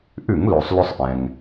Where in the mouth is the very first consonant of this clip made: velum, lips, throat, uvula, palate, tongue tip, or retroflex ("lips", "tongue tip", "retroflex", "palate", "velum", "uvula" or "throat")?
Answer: throat